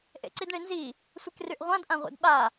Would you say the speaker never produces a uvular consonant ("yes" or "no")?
no